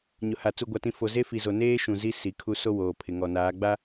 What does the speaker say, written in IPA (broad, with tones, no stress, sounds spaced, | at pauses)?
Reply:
ɲ ʊ˨ h a˨ t͡s u˨ ɡʷ a˨ t ĩ˨ f o˨ z e˦ f i˨ z o˨ n eː˦ ʃ ũ˨ z i˦ s i˨ kʰ u˦ s o˦ w oː˨ pʰ ɪ˨ ŋ ɔ˨ n aː˨˦ ɡ͡b a˦